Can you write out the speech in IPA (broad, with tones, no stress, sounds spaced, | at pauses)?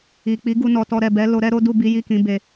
i˨ k͡p i˨˦ ɡ u˧ n ɔ˨ t ɔ˧ ɾ ɛ˨ b ɛ˨˦ l o˧ ɾ ɛ˦ ɾ o˦ d u˦˨ b i˨˦ j i˦˨ k ĩ˨˦ b e˧